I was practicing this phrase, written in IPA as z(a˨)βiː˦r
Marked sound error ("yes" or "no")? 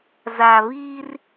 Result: no